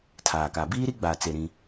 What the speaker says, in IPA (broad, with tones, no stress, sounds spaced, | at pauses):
tʰ aː˨ k a˨ b iː˦ ɾ i˦ ɡ͡b aː˨ t͡s e˨ ɾ ĩ˦